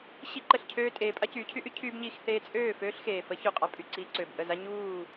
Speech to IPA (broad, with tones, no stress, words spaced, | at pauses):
ɕi˥ǃə˥˩ɬcʰøː˥ tʼeː˩˥ pʼa˥cyː˩˥cʰy˥ʔy˥ cʰyː˥bɲiː˧x θeː˧t͡sʼøː˥˩ føː˥ɬxeː˩fə˩˥ çyː˧qʼa˩˥ pʼy˥˩ǀiː˧ǀøː˩bʔə˥˩ za˥ ɲuː˥˩